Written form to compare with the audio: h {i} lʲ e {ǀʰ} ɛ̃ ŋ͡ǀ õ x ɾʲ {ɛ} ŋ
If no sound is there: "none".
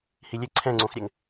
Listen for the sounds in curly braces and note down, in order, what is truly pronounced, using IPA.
i, ǀʰ, ɛ

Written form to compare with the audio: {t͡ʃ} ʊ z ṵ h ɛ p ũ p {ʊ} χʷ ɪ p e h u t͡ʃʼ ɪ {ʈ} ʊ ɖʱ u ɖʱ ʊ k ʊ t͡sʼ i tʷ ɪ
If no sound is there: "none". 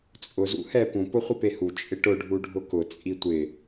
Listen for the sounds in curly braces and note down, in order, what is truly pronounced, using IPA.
t͡sʼ, ʊ, ʈ

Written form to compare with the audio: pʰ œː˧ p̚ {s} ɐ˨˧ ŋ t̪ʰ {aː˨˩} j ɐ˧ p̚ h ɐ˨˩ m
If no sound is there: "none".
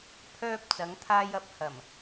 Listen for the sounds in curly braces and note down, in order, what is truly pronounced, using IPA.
t͡s, aː˧

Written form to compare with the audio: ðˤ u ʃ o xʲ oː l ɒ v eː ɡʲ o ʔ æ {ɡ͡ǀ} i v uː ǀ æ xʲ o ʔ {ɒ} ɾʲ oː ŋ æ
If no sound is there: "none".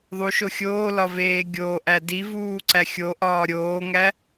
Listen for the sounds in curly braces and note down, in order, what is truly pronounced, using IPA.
d, ɒː

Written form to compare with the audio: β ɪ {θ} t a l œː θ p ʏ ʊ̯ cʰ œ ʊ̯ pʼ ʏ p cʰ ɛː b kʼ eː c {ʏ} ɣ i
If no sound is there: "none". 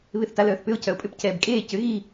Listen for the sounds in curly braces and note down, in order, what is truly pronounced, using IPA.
θ, ʏ

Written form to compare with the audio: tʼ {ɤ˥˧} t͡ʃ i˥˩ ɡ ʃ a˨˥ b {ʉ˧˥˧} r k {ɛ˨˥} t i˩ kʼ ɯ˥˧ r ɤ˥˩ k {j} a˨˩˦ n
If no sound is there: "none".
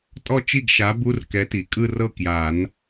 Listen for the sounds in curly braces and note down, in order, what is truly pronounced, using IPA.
ɔ˥˧, u˧˥˧, ɛ˨˥, j

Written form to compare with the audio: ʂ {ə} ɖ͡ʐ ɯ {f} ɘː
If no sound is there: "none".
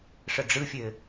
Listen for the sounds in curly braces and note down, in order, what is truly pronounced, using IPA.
ə, fʲ

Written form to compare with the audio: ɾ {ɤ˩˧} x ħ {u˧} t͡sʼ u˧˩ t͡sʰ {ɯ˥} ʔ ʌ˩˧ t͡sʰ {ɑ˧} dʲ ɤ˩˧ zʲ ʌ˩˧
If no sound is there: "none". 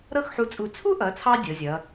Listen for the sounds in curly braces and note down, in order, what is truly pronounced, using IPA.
ɤ˥˧, u˧, u˥, ɑ˧

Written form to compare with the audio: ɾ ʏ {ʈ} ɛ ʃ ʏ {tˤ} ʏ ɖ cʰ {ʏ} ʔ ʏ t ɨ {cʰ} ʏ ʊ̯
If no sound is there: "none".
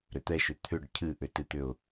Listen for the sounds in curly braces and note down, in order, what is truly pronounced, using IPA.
t̪, t̪ʰ, ɨ, t̪

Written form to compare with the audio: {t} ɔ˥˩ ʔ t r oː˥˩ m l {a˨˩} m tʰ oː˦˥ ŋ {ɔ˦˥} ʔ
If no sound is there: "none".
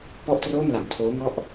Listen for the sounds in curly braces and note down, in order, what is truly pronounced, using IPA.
p, a˨˩, ɔ˦˥

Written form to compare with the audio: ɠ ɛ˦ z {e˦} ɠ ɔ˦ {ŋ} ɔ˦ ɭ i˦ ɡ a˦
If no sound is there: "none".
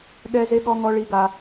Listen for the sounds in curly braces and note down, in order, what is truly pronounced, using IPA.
e˦, ŋ

